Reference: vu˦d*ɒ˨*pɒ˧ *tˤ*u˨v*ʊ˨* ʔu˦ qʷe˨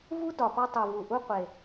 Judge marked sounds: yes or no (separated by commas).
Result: yes, yes, no